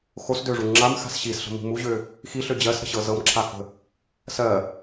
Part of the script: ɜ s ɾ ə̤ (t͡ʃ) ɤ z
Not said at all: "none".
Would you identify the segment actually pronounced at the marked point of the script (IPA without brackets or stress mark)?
ɕ